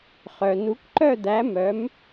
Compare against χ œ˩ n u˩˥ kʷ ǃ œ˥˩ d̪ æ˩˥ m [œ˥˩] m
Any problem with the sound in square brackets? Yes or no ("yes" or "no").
yes